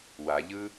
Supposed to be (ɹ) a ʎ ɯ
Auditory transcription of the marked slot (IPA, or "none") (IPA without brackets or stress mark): w